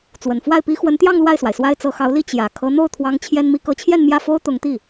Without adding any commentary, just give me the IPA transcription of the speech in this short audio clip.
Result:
t͡s w ə˨˩ n f w a˥˩ ɪ̯ p i˥ x w ə˧˥ n t̪ j ɑ˥˧ ŋ l w a˥˩ ɪ̯ s w a˩ ɪ̯ s w a˥ ɪ̯ t͡s ɤ˧˥ x ɑ˧˥ ʊ̯ l i˥ t͡ɕ j ä˨˩ kʰ ɤ˧˥ n̪ o˥˩ ʊ̯ t̪ʰ w ɑ˧˥ ŋ t͡ɕʰ j ɛ˥ n m i˧˥ k ɤ˧˥ t͡ɕʰ j ɛ˥˧ n m j ä˥˩ f o˥ ʊ̯ t̪ ʊ˧˥ ŋ t̪ i˥˩

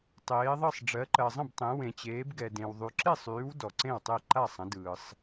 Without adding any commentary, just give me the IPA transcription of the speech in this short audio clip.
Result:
tˤ eː˨˦ ðˤ ɯ˥˨ sˤ ɖ͡ʐ ɜ˨˦ ǃ ɜ˨ zˤ ə̃˥˨ b tˤ ẽ˨˦ w ẽ˨ t͡ɕ eː˨˦ b ɡ ɛ˨ d ẽ˨ w ðˤ y˨ ǁ e˥˨ sˤ yː˨˦ w d ɔ˨ ǀ ẽ˥˨ w tˤ e˥˨ ǃ a˥˨ sˤ ə̃˨˦ d ɯː˨ sˤ

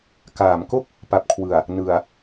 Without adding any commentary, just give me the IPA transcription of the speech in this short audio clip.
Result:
k aː˩˦ m k o˥˩ k̚ | p a˨˩ p̚ kʰ w ɯ˨˩ a̯ | n ɯ˨˩ a̯

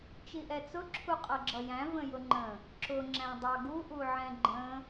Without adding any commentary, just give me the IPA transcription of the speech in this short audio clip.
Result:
t͡ʃ i ʔ ɛ t͡s ʊ ǁʰ u qʼ ʌ ɡ͡ǁ ʌ j æ̃ v ə̃ j ʊ ŋ͡ǃ ə̃ | ǁ ʊ ŋ͡ǁ æ̃ dˤ ɑ ɡ u ʔ u ʕ ɛ̃ ɡ͡ǃ ə̃

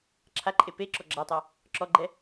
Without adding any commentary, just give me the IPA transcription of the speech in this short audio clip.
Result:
ǁʰ a ǃʼ e p e ǁ ɔ ɡ͡ǁ a tˤ a | ǁ ɔ ɡ͡ǃ ɛ

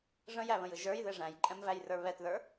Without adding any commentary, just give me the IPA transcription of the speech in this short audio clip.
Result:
ʐ ə̃ j æ β ə̃ j ɯ ʒ ə˞ j ð e ʐ æ̃ j ǃʼ ɛ̃ m v æ j r ə˞ β ɛ t ð ə˞

